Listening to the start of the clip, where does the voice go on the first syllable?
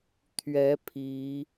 rising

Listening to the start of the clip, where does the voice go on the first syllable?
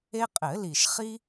high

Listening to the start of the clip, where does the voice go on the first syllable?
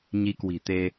rising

